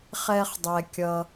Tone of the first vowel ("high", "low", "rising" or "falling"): high